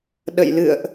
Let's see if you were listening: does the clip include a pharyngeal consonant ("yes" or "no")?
no